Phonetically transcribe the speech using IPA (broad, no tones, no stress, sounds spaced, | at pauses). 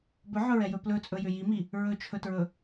b ɵ ʕ ɵ ɹ ɛ j ɵ p l ɵ t͡sʼ ɵ j ʏ j i m i | ɹ ɵ t͡ʃʰ ɵ t ɹ ɵ